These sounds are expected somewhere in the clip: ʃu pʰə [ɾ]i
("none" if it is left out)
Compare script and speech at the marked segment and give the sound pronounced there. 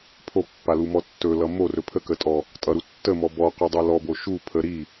ɾ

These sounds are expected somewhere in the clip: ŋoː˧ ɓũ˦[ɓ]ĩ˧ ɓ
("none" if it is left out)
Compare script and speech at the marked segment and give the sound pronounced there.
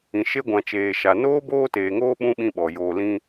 ɓ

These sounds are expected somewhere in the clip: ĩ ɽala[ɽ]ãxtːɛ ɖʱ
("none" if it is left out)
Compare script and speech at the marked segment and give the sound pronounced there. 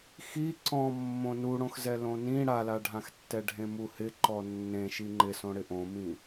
ɖʱ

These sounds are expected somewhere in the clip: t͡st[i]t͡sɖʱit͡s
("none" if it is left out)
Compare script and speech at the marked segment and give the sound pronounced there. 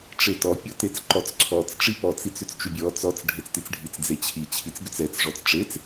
i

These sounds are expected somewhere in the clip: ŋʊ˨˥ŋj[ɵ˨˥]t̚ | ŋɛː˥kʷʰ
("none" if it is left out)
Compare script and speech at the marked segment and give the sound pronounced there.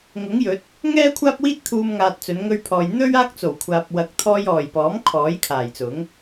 ɵ˨˥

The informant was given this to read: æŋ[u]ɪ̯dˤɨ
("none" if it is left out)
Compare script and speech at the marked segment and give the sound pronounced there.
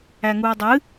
u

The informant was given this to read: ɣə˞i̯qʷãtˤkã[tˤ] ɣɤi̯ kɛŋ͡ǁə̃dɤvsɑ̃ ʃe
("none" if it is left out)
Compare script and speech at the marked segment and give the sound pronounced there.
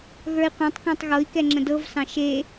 tˤ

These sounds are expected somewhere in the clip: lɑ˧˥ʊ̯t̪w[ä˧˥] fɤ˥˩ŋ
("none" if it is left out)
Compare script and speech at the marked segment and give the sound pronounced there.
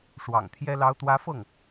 ä˧˥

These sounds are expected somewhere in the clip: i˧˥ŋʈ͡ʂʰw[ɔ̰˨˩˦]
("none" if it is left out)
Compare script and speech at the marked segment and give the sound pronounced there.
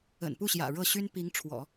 ɔ̰˨˩˦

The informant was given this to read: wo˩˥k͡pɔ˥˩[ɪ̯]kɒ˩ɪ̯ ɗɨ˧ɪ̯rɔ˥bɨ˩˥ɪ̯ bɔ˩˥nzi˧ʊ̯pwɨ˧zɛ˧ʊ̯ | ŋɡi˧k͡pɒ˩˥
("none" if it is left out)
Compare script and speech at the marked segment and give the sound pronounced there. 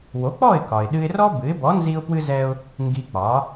ɪ̯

